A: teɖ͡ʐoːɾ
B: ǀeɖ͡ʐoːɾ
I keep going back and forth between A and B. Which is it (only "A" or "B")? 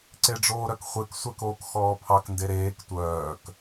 B